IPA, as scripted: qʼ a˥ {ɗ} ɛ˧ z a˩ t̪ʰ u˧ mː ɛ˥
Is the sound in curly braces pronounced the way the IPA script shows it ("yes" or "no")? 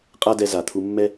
no